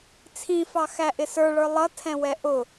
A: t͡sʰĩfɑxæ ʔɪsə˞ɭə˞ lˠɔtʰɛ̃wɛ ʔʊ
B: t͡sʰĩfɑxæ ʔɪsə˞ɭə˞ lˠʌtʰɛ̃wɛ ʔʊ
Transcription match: B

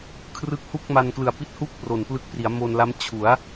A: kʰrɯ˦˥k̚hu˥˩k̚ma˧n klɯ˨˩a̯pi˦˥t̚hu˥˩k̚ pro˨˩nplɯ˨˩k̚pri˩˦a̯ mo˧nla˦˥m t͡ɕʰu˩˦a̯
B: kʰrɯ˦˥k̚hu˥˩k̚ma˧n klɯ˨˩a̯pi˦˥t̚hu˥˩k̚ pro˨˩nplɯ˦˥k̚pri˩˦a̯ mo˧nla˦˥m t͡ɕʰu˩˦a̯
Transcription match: B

